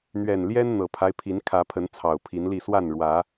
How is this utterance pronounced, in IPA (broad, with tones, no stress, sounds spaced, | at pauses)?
n̪ ɥ ɛ˨˩ n l j ɛ˦ n n̪ ɤ˨˩ pʰ a˦ ɪ̯ pʰ i˨˦ n kʰ ä˨˦ pʰ ə˨˦ n t͡sʰ ɑ˨˩ ʊ̯ pʰ i˨˦ n l i˥˨ s w a˥˨ n ɻ w ä˨˦